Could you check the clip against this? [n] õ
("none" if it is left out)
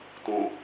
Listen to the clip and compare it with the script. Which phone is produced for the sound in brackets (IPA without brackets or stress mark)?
t